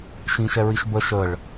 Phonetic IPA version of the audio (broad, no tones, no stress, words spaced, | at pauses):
ʃĩʃɛɹiʃ bə ʃəɭ